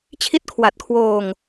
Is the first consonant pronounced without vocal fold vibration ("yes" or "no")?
yes